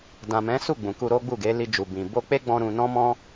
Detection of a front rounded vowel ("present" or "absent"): absent